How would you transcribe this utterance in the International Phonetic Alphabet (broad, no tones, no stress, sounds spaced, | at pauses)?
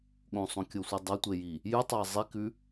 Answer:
ɠ õ sˤ õ kʲ o sʷ i dˤ ɐ tʷ e j i | j ʉ tˤ a zˤ i k ʉ